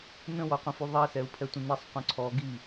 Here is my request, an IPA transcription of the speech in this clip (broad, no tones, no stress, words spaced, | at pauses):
nə̃wɔqʷə̃fy ðˤɛsɛu̯pʰɛtʷə̃ nisˤqʷœ̃ ǀʰɔ ɡi